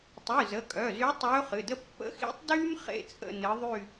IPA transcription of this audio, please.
tˤ y˩˧˩ z ə˩˧˩ kʼ œ˩˧˩ z y˧˥ tˤ ɵː˧˥ χ ɨ˩˧˩ d ə˥ pː ə̰˧˥ x ḭ˧˥ tˤ d yː˥ m χ ḛ˥˧ t͡sʼ ə̰˥˧ n ɨ˧˥ ðˤ y˥˧

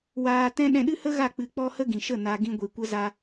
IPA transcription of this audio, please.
w aː˧ t ɛ̃˦ ɗ ɛ̃˧ ɗ ɨ˦ h ə˦ ɣ a˦˨ k͡p ɨ˧ k͡p ɔ˦ h ə˦ ɡ ĩ˨ ʃ ə˦˨ n a˧ ɡ ĩ˦ ɡʷ i˧ kʷ ə˦ z a˦

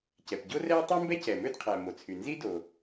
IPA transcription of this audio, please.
c ɛ˩ p ɟ o˥ r ɛ˥ w tˤ o˥ m b ɛ˥ c ɛ˩ m ø˥ d qʰ æ˩ m o˩ t͡sʰ y˩ n z i˥ d o˩

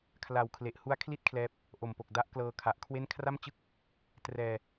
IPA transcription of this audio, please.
kʰ l a˨˩ w kʰ l e˨˩ ʔ h u˦˥ a̯ kʰ l i˥˩ t̚ kʰ l ɛː˦˥ p̚ | ʔ o˨˩ m p o˨˩ k̚ d a˦˥ ʔ k l ɤː˧ kʰ a˨˩ ʔ kʰ w e˥˩ n kʰ r a˥˩ m t͡ɕ ɯ˥˩ k̚ | t r ɛː˧

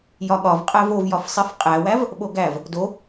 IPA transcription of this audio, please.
j ɒ ɠ ɒ v qʼ æ v o v j ɒ f sˤ i f qʼ æ w æ v | ɓ o ɡ æ v | d o

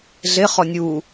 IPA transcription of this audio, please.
ɮ e χ ɔ nʲ u

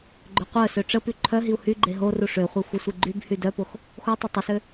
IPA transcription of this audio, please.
ɡ͡ǃ ø qʷ œ s ø ʈ͡ʂ ə p y ǃʰ œ ɦ i u̯ h y ɡ͡ǃ e ɦ o r u ʂ ø χʷ e xʷ ə sʷ i ɡ͡ǃ y b h y d œ p o x | x o tˤ e tˤ ə s ø

